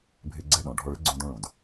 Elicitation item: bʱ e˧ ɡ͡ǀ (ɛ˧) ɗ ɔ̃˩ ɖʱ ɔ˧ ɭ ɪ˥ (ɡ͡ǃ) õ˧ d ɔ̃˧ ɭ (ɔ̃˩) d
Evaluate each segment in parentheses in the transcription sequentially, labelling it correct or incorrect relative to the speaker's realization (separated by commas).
correct, incorrect, incorrect